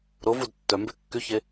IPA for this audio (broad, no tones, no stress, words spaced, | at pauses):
ɾovud tːœ mbekːyçe